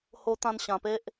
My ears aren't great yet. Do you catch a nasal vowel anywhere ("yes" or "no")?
yes